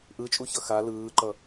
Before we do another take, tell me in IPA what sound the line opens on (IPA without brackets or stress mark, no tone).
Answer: ʔ